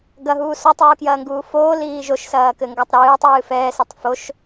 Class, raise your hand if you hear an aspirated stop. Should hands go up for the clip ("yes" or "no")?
no